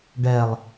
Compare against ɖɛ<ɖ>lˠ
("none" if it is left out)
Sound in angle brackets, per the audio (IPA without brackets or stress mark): none